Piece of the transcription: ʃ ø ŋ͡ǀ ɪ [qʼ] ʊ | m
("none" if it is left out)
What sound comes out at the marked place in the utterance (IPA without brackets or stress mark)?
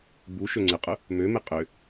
qʼ